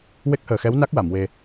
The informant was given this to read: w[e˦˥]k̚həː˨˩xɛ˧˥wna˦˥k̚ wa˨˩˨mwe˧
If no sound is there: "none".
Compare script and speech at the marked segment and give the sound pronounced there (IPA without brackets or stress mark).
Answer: e˦˥